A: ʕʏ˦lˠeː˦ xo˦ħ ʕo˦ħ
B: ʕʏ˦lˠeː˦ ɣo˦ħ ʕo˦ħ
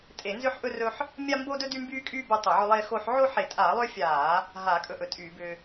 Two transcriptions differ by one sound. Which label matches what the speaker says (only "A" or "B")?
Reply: A